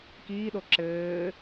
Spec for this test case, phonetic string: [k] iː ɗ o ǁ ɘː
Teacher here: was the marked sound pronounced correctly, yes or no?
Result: yes